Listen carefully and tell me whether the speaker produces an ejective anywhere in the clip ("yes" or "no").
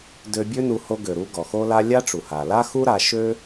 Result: no